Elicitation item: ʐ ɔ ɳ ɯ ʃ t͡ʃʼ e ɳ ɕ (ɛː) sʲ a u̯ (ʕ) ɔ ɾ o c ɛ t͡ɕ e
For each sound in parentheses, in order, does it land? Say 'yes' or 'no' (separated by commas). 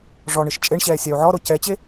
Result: yes, yes